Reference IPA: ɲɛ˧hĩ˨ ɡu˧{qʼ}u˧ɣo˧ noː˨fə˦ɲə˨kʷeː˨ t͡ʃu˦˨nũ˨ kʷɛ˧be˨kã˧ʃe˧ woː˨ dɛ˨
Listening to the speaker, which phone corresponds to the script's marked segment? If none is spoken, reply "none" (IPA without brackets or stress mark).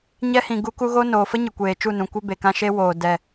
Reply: k